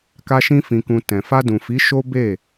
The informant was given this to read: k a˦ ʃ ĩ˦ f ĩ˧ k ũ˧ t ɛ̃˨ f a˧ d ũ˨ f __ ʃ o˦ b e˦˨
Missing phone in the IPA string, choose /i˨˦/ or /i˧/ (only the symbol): i˨˦